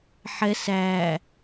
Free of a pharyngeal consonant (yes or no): no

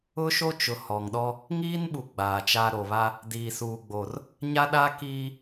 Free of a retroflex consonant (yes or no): yes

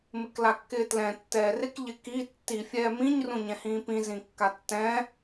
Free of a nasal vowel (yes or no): no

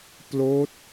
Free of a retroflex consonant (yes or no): yes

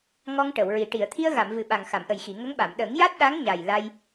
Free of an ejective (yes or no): yes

